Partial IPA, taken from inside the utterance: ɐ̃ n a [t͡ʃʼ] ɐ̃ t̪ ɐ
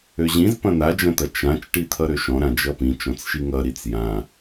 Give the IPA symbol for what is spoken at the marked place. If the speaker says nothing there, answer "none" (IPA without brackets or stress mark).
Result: d͡ʒ